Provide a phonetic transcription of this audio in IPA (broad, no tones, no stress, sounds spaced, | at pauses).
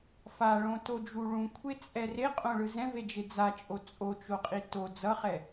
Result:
f a ɭ õ t o d͡ʒ u ɭ ũ kʷʰ e t͡sʼ ɛ r e qʼ õ ɭ ɯ z ɛ̃ v e d͡ʒ e d͡z a t͡ʃʼ o t͡sʼ o t͡ʃ o qʼ i t o d͡z ʌ χ ɛ